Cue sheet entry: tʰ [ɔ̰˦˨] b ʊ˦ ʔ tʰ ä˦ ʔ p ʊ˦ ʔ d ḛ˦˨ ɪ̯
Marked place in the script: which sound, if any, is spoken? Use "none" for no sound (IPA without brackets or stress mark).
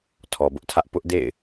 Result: ɔ˨